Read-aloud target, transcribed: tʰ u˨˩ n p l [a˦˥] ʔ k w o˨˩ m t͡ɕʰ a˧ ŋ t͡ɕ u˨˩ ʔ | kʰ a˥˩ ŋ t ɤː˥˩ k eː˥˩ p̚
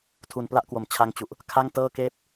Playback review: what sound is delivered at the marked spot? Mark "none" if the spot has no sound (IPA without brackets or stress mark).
a˦˥